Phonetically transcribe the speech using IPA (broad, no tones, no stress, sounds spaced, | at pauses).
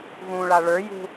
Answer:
ɣ ũ ɭ a ɭ ə˞ j ṳ